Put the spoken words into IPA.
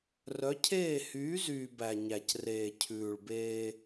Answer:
r œ˨˦ cʰ eː˦˨ h yː˨˦ z yː˨ b æ˨ ɲ æ˨ c r eː˨ cʰ ʉː˨ ɭ b eː˦

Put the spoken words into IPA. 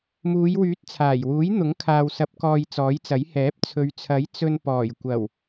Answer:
m uː˨˧ j w yː˨˥ t̚ t͡sʰ aː˨˩ j w uː˨˥ j n̪ ʊ˨˥ ŋ kʰ aː˨ w s ɐ˨˥ p̚ k ɔː˧ j t͡s ɔː˨˥ j t͡s ɐ˨˥ j h ɛː˨˥ p̚ t͡sʰ ɵ˨˧ ɥ t͡sʰ ɐ˨˥ j t͡s ɵ˧ n p ɔː˨˩ j kʷ ɐ˨˩ w

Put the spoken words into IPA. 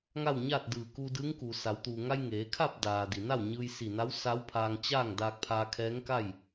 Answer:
ŋ a˥˨ w ɲ aː˥˨ t̚ d ɯː˧˩ k uː˧ d ɯː˧˥ ŋ k uː˩ s a˩˧ w t̪ uː˩ ŋ a˧ j ŋ eː˩˧ kʰ a˥˨ p̚ d aː˩ d i˩ n a˥˨ w ɲ ɯː˧ j s i˧˩ n a˧˥ w s a˧˥ w pʰ aː˧ ŋ t͡ɕ aː˥˨ ŋ d aː˧ k̚ pʰ aː˧ kʰ ɛː˧˥ ŋ k a˥˨ j

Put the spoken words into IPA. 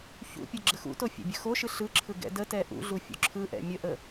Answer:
ç ṵ pʲ ɯ ɡ͡ǁ ə x ṵ t o fʲ ɛ̰ bʲ ə x o ʃ ɯ ɬ ɯ ǁʰ ɯ ɡ ɛ̰ d ə t ɛ ʔ ṵ ɮ u fʲ ṵ ǁʰ ɯ ʔ ɛ̰ mʲ ə ʔ ə

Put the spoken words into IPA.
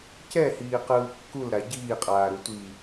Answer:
c ɛ h iː q ɯː kː u l ɾ a ɟ iː qʼ aː ɾ u tʷ iː

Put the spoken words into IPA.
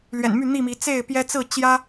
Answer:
l ɥ ɛ̰˨˩ n m y˥˨ n̪ i˥˨ m i˨˦ t͡s e˥˨ ɪ̯ p j ɛ˦ t͡s ɹ̩˥˨ t͡ɕ j ä˦

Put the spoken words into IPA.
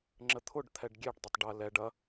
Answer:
ŋ͡ǁ ə t̪ʰ ʊ ɖ t̪ʰ ɛ ɖ ɡʲ e ɖ dˤ ə tˤ ɖ ɐ l ɛ ɖ ɐ

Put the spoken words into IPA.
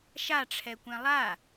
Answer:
ʃ a ʈ͡ʂʰ ɛ kʷ ɛ̃ lˠ a

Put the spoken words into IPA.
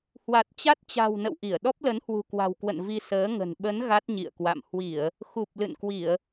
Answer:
h w a˨˩ t̚ t͡ɕ a˦˥ t̚ t͡ɕ a̤˨˩ w n ə̰˧˨ w ʔ i˧˩ ə̯ ɗ ɔ˦˥ p̚ l ə˨˦ n h w ṳ˨˩ k w a̤˨˩ w k w ə̰˧˨ n v i˧ s əː˨˦ ŋ ə̤˨˩ n ɓ ə˨˦ n ɣ a˦˥ t̚ ɲ ḭ˧˨ ə̯ k w a̰˧˨ m h w i˧˩˨ ə̯ | x u˨˩ p̚ l ɨ̰˧˨ n k w i˧˩˨ ə̯

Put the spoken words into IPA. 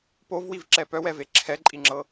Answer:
p o v w i v ǁ ɛ p œ w ɛ v e ǁʰ ɛ ǃʼ i ŋ͡ǁ ɤ

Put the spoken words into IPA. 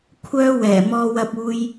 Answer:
kʷʰ œː˥ w ɛː˨˩ m ɔː˧ w ɐ˧ p̚ uː˧ j

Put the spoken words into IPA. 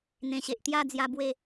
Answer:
n̪ ẽ˨˩ ɕ e˨ ʔ t̪ j a˥˧ d͡z j a˧ b w e˥˧

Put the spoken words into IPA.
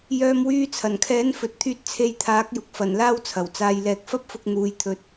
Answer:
j œː˧ m w yː˧ t͡sʰ ɐ˨˩ n kʰ ɛː˨˥ n f ɵ˨ t̚ t̪ʰ yː˧ t̚ t͡sʰ e˧ j t̪ʰ aː˨˥ k̚ j ʊ˨ k̚ f ɐ˨˩ n l aː˥ w t͡sʰ ɐ˨˩ w t͡s aː˧ j l ɛː˧ k̚ f ɐ˥ p̚ f ʊ˧ k̚ n̪ uː˧ j t̪ʰ ɵ˧ t̚

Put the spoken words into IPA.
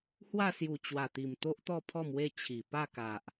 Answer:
h w a˥˧ s j u˨˩ t͡ɕ w a˨˩ t̪ i˨˩ m t̪ o˦ ʔ t̪ ɔ˥˧ pʰ ɔ˥˧ m w e˥˧ t͡ɕʰ i˨˩ p a˥˧ k a˨ ʔ

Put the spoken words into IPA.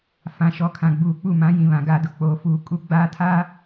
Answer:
f ã˨ ʃ ɔ˨ kʰ ã˨ ɡ͡b uː˨ k͡p u˦˨ m ã˨˦ j ĩ˨ β ã˨ ɡ aː˨ d ʊ˨ k͡p oː˨ f uː˨ kʼ u˦ ɡ͡b aː˦ tʰ aː˦

